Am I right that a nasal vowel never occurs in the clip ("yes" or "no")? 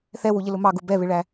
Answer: yes